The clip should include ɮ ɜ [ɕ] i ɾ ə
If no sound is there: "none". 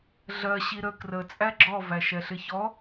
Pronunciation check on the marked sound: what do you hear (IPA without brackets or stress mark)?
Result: ɕ